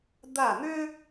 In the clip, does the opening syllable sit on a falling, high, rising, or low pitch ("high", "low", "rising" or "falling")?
falling